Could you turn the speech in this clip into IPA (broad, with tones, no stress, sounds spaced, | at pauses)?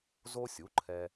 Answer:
z o˥ sʲ u˩˥ ǃʰ ɛ˧